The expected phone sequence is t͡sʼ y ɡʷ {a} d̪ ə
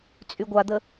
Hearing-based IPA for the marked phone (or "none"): a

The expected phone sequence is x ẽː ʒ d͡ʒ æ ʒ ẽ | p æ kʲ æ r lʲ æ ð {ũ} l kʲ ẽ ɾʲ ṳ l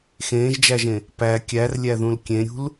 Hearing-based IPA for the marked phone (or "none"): ũ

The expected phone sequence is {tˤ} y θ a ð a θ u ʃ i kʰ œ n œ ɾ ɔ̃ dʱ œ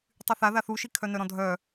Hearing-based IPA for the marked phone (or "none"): tˤ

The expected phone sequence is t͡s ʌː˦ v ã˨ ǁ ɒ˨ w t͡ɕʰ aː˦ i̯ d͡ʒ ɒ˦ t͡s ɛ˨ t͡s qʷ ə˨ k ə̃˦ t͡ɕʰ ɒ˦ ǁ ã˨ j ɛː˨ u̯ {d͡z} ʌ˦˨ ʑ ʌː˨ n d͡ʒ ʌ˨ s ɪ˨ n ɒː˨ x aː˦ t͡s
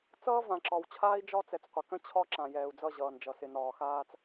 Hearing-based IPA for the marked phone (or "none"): d͡z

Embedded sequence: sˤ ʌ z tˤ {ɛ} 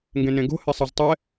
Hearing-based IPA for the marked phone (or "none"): ɛ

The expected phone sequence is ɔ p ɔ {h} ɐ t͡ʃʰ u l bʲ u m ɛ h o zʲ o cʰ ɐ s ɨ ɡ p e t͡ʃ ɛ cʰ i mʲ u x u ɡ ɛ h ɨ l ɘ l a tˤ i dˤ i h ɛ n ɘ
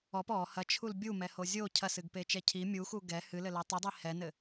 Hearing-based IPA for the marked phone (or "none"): h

